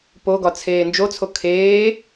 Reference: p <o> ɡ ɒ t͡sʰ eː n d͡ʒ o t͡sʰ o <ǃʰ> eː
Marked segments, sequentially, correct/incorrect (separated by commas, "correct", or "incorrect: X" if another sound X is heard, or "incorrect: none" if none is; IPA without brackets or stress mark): correct, incorrect: kʰ